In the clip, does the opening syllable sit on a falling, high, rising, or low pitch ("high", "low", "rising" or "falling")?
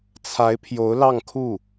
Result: rising